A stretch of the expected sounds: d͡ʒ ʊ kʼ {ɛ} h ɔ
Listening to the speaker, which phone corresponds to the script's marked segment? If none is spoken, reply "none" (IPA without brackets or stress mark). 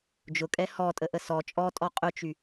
ɛ